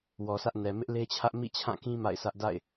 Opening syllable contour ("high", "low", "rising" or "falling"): low